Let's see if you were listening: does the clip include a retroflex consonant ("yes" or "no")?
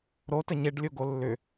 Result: yes